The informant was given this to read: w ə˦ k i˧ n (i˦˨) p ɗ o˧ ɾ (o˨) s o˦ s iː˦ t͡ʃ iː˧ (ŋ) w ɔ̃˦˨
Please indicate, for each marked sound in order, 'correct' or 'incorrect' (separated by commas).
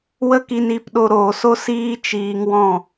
correct, incorrect, correct